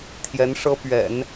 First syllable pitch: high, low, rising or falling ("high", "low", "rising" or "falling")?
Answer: rising